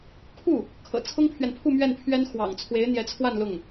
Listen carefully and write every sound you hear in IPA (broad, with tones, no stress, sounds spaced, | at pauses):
kʰ u˥˩ | kʰ ɤ̰˨˩ t͡sʰ ʊ˥ ŋ pʰ ɥ ɛ˨ n pʰ u˥˧ m ɥ ɛ˥˩ n pʰ ɥ ɛ˥ n x w ɑ̰˨˩ ŋ t͡sʰ w e˧˥ ɪ̯ n̪ j ɛ˧˥ t͡sʰ w a˥˧ n l ʊ˥˩ ŋ